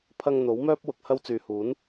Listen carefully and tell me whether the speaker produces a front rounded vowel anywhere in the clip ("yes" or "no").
yes